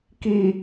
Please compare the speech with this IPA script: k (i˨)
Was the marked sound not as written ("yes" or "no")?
no